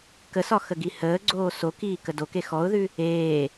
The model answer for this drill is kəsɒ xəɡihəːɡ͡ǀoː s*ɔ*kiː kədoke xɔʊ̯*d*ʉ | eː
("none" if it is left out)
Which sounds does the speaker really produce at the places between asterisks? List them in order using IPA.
o, ð

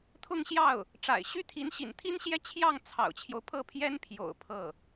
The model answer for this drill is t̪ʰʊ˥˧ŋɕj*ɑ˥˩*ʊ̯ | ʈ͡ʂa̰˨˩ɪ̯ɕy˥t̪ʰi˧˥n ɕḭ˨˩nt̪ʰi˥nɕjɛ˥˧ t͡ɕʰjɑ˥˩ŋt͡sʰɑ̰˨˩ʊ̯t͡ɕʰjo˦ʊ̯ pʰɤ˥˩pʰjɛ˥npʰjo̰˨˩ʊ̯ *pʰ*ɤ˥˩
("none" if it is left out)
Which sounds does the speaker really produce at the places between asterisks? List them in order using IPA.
ɑ˥˩, pʰ

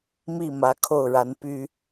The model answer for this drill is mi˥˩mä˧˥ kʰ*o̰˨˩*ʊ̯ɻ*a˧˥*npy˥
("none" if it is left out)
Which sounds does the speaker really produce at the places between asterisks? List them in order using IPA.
o˥˩, a˧˥

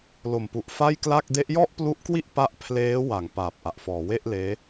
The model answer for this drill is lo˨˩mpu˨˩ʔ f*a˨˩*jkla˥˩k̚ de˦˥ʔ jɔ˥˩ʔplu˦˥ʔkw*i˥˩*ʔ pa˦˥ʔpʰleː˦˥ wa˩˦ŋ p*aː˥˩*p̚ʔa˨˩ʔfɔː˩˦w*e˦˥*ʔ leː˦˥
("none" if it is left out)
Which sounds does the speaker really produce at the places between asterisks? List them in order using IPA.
a˥˩, i˥˩, aː˨˩, e˥˩

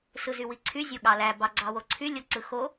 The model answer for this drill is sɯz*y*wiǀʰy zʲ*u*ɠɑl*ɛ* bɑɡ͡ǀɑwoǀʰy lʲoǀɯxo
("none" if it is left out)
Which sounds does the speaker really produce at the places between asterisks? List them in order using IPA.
y, o, æ

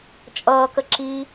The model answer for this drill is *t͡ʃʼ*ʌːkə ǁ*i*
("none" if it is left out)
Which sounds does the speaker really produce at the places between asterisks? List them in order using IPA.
t͡ʃʼ, i

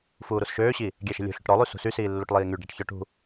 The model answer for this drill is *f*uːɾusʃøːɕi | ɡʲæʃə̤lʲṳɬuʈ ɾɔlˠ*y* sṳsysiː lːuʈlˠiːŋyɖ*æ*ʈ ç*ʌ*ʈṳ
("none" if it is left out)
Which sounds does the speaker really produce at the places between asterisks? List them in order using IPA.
f, y, æ, ɔ

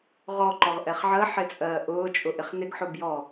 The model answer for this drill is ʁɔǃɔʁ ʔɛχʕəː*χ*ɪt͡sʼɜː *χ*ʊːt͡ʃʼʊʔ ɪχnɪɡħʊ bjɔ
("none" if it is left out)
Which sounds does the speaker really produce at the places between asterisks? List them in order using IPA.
ħ, ʔ

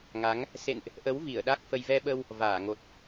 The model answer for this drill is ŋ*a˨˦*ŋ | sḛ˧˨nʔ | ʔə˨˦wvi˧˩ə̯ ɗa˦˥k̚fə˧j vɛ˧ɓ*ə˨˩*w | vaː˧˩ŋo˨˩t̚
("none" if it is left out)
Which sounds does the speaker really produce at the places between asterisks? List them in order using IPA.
a˨˦, ə˧

